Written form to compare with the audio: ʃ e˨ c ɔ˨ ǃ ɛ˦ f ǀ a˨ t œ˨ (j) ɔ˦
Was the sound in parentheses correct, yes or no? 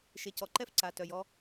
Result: yes